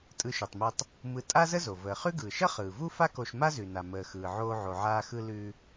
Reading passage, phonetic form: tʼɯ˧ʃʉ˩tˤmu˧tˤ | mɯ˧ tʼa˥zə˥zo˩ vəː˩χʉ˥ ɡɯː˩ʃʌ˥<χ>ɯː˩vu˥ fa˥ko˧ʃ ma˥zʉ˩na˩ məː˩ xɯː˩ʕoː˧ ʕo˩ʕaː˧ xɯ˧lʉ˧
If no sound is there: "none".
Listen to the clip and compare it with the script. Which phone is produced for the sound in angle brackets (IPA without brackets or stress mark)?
χ